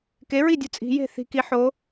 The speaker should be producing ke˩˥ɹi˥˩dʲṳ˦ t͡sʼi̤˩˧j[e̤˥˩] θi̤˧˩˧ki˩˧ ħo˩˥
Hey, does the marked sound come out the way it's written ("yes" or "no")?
yes